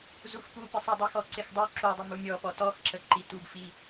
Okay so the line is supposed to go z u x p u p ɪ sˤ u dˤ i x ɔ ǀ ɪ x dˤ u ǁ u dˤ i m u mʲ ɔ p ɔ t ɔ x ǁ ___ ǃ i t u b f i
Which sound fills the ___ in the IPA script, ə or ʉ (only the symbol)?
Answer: ə